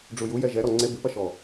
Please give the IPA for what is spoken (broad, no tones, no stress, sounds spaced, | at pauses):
ɖ͡ʐ u j u j ɛ ʒ ɛ ɾ ɔ ŋ͡ǀ e b ɨ p ɐ ʃ ɔ